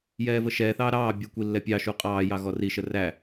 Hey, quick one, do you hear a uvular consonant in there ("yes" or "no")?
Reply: yes